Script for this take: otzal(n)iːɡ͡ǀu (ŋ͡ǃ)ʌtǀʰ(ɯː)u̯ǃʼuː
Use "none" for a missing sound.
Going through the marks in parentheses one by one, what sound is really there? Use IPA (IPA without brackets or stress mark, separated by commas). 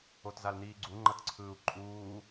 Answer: n, ŋ͡ǃ, ɯː